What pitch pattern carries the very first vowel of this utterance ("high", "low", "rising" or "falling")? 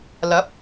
rising